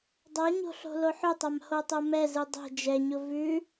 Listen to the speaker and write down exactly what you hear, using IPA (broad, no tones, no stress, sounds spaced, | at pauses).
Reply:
dˤ a ɲ o̤ ɬ o̤ l o ħ ʊ tˤ a m h o tˤ o m ɛ z ɯ dˤ ɛ̤ d͡ʒ ɛ ɲ ʊ v ʉ